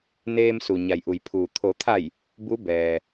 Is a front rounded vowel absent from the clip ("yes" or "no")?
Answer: yes